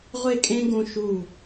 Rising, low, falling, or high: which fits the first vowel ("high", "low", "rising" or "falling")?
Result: falling